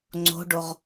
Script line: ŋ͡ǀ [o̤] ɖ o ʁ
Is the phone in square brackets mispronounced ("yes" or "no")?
no